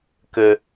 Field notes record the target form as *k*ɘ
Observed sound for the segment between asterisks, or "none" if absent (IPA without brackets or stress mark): k